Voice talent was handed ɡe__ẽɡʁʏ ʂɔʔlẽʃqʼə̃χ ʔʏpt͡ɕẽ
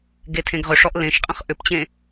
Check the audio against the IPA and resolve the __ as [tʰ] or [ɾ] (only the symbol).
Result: tʰ